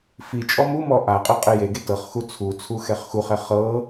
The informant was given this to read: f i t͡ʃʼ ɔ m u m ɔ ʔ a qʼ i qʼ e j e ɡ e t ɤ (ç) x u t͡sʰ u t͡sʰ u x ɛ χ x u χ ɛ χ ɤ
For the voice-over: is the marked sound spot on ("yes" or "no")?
no